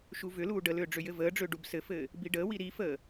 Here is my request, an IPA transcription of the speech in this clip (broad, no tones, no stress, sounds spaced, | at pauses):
ʃ u v ʏ l uː ɖ ə l ʏː ɖ͡ʐ ʏ j ɘ v əː ɖ͡ʐ ʏː ɖ u b s ɘ f ɘː | b i ɖ əː w i ɾ i f əː